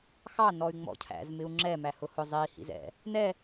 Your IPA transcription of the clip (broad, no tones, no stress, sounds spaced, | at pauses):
x ɑ n ɔ y̯ ŋ͡m ɔ̰ cʰ æ̰ z m ɪ u̯ ŋ͡ǁ ɛ m æ h ʊ h ʊ zˤ i h ḭ z ɛ̰ | n ɛ